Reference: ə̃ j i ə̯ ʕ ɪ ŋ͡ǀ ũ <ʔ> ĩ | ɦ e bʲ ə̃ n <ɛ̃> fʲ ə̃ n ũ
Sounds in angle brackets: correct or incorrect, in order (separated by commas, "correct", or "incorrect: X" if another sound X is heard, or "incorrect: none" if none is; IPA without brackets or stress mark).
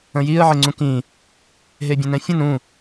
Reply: incorrect: k, correct